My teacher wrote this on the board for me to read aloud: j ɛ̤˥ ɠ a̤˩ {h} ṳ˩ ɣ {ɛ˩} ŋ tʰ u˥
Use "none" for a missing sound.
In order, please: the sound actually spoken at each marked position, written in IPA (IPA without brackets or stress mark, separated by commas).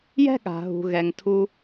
ɦ, ɛ˩